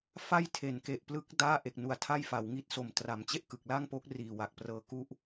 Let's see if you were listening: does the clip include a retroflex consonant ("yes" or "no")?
no